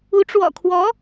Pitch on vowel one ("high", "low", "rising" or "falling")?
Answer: rising